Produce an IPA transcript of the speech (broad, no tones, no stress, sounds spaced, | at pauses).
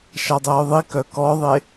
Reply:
ʃ a dˤ ɛ ʊ̯ ðˤ i k œ k ɔ ðˤ e